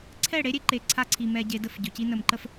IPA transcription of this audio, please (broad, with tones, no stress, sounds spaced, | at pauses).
ǀʰ ɛ˦˨ ɽ e˦ ɾʲ e˦ ǃ e˨ ǀʰ a˦ ǀʰ i˨ m ɛ˨ ɟ e˨ d ə˦˨ f ɟ ɵ˨ c i˦ n ə˨ m ǃ ə˨ f